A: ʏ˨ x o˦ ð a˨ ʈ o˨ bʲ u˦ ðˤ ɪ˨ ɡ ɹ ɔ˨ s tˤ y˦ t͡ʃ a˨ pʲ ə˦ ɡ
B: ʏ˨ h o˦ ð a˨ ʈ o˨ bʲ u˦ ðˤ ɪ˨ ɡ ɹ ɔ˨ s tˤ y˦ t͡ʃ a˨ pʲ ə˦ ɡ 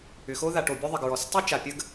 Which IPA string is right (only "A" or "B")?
A